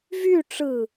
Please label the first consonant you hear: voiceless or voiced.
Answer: voiced